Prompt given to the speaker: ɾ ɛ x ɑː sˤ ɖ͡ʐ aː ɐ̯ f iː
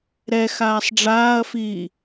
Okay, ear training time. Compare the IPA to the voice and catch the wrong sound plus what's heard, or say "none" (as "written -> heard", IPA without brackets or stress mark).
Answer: ɑː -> aː